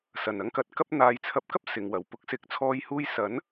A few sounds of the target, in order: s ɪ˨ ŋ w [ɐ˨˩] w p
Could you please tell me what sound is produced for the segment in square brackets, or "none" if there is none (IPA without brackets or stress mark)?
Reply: ɐ˨˩